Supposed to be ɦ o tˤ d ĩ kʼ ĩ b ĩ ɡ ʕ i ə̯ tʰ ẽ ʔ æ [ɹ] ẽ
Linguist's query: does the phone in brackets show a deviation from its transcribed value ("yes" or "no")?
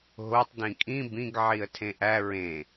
no